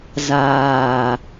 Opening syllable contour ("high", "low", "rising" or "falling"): low